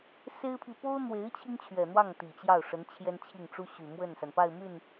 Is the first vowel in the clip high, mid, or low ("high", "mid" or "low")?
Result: mid